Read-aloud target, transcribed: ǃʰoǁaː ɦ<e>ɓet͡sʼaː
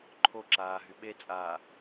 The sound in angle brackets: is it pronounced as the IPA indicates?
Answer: no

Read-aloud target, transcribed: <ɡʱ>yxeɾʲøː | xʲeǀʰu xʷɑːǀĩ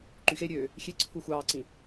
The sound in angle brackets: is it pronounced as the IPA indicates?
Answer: no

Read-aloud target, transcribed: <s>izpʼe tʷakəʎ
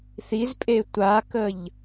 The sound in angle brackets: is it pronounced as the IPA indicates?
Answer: no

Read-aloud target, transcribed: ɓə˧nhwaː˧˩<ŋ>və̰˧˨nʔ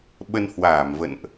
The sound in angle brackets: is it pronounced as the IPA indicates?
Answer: no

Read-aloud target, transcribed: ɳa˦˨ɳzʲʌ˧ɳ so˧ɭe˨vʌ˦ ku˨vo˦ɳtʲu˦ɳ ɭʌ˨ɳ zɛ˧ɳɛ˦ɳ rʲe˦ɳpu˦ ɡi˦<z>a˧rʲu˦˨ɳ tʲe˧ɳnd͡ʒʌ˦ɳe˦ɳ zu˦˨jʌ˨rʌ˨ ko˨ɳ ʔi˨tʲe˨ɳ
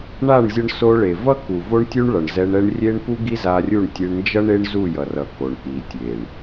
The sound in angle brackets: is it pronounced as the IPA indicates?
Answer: yes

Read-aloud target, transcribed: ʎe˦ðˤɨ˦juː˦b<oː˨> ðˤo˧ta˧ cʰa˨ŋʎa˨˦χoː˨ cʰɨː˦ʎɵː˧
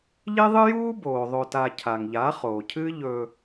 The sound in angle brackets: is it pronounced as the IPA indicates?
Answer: yes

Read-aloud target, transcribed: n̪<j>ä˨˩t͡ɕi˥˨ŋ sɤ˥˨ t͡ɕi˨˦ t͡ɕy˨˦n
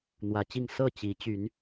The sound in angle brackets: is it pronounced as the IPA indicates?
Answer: no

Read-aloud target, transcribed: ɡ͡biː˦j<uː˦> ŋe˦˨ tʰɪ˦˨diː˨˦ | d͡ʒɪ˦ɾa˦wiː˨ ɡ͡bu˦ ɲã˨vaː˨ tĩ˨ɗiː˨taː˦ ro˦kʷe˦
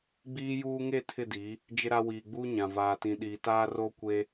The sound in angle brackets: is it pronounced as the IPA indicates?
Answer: yes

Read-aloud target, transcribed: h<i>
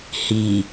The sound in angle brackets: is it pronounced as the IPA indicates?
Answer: yes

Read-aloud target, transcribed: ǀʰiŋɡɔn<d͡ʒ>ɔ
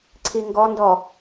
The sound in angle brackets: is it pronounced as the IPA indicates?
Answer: no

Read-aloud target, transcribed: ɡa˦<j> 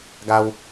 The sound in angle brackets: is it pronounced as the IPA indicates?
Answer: no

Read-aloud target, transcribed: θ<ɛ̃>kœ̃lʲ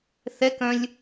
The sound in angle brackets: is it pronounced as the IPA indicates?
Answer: no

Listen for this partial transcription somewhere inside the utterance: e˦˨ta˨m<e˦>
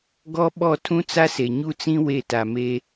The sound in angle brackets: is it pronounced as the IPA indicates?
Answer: yes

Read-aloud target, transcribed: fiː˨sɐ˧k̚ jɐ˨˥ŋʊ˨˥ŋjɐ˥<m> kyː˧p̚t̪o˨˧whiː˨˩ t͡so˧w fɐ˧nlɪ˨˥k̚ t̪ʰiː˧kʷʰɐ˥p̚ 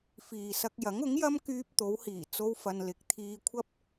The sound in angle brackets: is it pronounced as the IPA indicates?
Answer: yes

